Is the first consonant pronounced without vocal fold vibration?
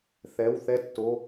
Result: yes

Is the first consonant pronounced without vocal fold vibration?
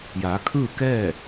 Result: no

